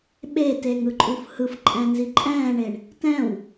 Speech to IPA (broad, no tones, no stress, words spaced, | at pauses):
ɓeteŋɯǃʼuf hɯfǃʼɛ̃nzi ǃʼɛ̃ːɳeɳ | tɛ̃w